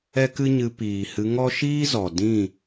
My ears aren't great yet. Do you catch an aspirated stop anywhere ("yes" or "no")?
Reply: no